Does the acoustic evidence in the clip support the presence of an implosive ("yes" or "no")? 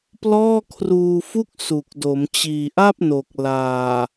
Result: no